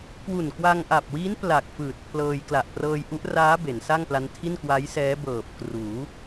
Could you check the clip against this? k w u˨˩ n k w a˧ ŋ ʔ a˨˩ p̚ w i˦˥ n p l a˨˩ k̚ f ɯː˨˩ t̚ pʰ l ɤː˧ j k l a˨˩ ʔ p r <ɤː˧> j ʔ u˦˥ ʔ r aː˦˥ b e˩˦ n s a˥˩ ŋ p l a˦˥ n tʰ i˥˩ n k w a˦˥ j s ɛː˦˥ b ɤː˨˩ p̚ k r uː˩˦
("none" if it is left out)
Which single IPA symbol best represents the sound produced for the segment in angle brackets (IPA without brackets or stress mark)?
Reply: ɤː˧